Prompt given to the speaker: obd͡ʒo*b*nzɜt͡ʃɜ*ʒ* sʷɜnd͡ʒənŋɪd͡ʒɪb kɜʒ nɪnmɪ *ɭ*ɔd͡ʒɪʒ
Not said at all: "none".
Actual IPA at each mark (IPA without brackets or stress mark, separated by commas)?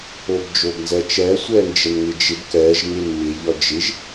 b, none, ʎ